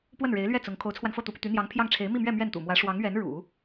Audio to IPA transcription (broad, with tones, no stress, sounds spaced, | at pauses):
p w ə˥˩ n ɻ e˧˥ ɪ̯ l ɥ ɛ˥˩ t͡s ʊ˧˥ ŋ kʰ o˧˥ ʊ̯ t͡sʰ w a˧ n f ɤ˥˩ t̪ u˧˥ p y˧ t̪ y˧˥ n̪ j ɑ˧˥ ŋ pʰ j ɑ˥˩ ŋ ʈ͡ʂʰ e˧˥ ɪ̯ m i˥˧ m ɥ ɛ˥˧ m ɥ ɛ˥˩ n t̪ ṵ˨˩ m w ä˧˥ ʂ w ɑ˧˥ ŋ ɥ ɛ˧˥ n ɻ ṵ˨˩˦